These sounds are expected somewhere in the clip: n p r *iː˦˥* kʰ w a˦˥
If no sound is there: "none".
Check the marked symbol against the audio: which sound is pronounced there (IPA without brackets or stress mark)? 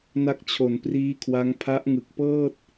iː˦˥